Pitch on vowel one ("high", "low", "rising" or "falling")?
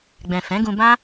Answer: low